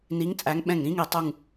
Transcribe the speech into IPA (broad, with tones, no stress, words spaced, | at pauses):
ni˨˦ŋt͡sʼæ˨˦ŋ ɓɛ̃˧˩ŋɾĩ˨˦ŋi˧˩ tˤu˧˩ŋ